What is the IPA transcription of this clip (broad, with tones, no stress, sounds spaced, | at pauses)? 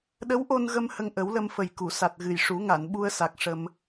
ɗ ə˧˥ w ʔ o˧ n ɣ ə˧ m h ə˧ ŋ ʔ ə˨˩˦ w l ə˧ m f ə˨˩ j k u˨˩˨ s a˨˩ t̚ ɣ ɨ˨˩ j ʂ u˨˩˦ ŋ a˨˩˨ n ɓ u˧ ə̯ s a˨˩ k̚ ʂ ə˧ m